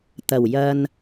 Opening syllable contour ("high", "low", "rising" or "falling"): low